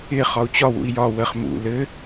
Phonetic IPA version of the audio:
ɪ χ ɒ u̯ t͡ɕ ɒ w ṵ i̯ j ɒ w ə χ m ṵ l ɘ

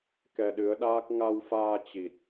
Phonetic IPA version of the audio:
k ɛ˧ ɗ ɨ˨˦ ə̯ ɗ aː˦˥ k̚ ŋ a˧ w f aː˧ t͡ɕ i˨˩ t̚

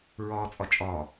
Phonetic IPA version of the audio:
ɹ ɒː t͡sʼ ɒ t͡ʃʼ ɒː

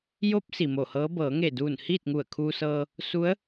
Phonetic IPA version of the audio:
j o˧˥ p̚ s i˩ m o˧˩ h ɤː˧˥ b ɤː˩˧ ŋ e˧˩ d uː˧˩ n h iː˥˨ t̚ ŋ u˧˩ ə̯ kʰ uː˧ s ɤː˧ | s u˧˥ ə̯

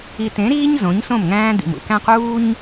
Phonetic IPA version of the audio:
i˨ t ẽ˨˦ ɾ iː˦ ɲ z õ˨˦ ɲ s õ˦˨ m ŋ æ̃ː˦ d̪ ḭ˨ m ṵ˨ k æ̃˦ q uː˦ ɲ

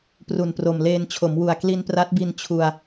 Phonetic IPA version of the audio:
p r u˨˩ n p r o˨˩ m l eː˧ n t͡ɕʰ o˩˦ m w u˨˩ a̯ k l i˧ n p r a˦˥ t̚ b i˧ n t͡ɕʰ u˧ a̯

